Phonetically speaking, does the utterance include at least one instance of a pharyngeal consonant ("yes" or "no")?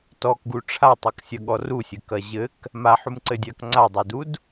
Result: yes